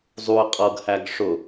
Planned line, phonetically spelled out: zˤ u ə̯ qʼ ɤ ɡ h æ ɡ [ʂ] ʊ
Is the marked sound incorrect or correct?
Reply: correct